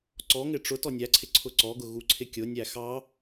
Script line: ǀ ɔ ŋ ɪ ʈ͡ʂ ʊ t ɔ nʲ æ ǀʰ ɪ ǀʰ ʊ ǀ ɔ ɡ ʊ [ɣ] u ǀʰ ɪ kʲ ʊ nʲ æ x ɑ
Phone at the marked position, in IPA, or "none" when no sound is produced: ɣ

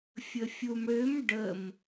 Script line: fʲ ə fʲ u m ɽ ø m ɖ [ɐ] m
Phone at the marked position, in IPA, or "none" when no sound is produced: ə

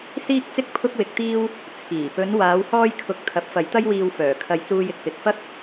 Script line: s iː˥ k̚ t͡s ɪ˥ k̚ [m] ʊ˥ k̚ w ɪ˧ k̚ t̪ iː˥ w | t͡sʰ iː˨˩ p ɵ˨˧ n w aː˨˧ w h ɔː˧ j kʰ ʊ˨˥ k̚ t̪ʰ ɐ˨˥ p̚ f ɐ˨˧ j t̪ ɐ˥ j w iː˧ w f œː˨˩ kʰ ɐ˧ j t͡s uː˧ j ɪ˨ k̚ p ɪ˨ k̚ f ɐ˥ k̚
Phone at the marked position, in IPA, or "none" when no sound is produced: pʰ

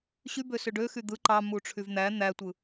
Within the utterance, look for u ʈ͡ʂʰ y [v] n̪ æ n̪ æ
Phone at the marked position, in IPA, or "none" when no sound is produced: v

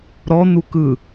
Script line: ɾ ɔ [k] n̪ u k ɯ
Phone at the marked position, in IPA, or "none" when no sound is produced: none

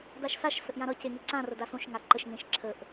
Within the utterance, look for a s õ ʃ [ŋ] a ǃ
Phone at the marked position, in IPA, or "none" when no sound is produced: ŋ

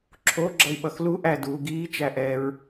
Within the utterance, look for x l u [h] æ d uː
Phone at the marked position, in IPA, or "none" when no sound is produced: ʔ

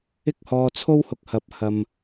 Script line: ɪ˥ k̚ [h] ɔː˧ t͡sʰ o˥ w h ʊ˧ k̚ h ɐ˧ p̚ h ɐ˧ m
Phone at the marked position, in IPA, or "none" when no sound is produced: h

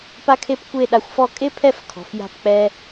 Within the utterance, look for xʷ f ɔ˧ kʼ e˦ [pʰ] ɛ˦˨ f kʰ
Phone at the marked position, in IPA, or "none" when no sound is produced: pʰ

